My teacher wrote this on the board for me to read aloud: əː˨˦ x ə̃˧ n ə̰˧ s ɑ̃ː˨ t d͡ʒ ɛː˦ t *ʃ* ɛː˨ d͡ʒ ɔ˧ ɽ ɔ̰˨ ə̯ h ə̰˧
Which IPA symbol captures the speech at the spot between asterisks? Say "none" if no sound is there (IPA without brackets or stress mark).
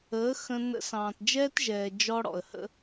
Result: ʒ